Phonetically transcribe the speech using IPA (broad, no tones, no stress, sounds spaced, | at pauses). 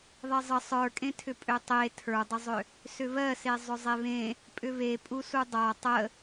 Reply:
ðˤ e zˤ ə sˤ ə˞ kʼ ẽ tʰ ʏ pʼ ø tˤ e tʰ ə˞ dˤ ə zˤ ʏ | s ʏ β ɜ s e zˤ ʏ zˤ e β ẽ | pʼ ʏ β e pʼ u s u dˤ a tˤ ə